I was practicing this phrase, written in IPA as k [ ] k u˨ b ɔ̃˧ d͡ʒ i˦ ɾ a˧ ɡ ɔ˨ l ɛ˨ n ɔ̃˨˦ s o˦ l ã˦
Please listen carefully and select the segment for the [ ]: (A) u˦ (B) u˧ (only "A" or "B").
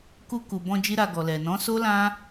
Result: B